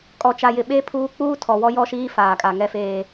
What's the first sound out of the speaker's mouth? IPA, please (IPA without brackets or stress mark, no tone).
kʼ